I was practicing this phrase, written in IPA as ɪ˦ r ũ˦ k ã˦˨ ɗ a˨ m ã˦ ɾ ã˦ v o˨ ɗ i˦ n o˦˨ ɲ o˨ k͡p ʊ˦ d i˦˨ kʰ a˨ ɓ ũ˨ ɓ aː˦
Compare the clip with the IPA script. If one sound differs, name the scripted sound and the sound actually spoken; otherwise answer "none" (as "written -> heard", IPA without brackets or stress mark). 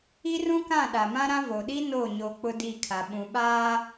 ɪ˦ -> i˦